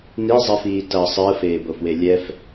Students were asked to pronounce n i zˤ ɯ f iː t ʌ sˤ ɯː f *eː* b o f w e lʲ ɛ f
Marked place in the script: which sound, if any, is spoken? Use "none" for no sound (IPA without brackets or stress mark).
eː